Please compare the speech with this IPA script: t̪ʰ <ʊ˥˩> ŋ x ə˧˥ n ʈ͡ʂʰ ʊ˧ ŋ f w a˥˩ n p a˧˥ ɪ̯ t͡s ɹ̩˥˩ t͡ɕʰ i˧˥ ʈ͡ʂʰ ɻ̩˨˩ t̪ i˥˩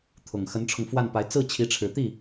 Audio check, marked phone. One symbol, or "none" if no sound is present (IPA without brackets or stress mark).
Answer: ʊ˨˩